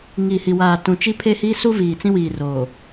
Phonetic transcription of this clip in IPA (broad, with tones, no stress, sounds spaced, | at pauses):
ŋ i˨ h i˨ w aː˨ t ũ˨ t͡ʃ i˦ pʰ e˦ h i˦ s u˦ v iː˨ t͡s ĩ˦ w iː˨ r o˨